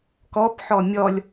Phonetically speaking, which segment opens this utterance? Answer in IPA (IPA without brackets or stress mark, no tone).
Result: k